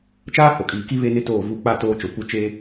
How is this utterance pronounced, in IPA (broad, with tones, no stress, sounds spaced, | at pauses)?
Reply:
t͡ʃ aː˦ h o˨ kʼ iː˨ k i˦ β e˦ n ɪ˦ t oː˦˨ v u˦˨ k͡p a˦˨ t oː˦ t͡ʃ o˨ kʷ ɪ˦˨ t͡ʃ e˦